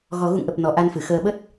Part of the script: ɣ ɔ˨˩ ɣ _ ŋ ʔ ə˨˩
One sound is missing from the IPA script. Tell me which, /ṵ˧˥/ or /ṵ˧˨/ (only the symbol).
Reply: ṵ˧˨